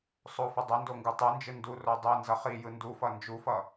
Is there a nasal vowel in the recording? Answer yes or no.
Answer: no